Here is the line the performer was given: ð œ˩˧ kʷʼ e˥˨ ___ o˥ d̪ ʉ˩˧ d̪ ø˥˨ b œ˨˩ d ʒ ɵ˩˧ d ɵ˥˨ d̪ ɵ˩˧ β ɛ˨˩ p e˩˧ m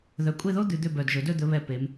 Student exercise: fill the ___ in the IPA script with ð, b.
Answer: ð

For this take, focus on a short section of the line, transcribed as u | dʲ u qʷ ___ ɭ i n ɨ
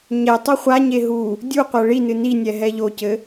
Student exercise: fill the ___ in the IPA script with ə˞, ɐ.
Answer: ɐ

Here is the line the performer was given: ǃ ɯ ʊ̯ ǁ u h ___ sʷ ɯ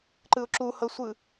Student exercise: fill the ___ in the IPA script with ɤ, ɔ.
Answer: ɤ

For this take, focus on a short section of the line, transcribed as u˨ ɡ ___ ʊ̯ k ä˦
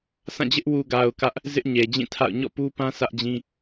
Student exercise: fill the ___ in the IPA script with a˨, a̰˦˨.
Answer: a˨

